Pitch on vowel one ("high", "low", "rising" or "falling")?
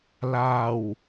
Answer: low